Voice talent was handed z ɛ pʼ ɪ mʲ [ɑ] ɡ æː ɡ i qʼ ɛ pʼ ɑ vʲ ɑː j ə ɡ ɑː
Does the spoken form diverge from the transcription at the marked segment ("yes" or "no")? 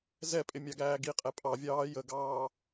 no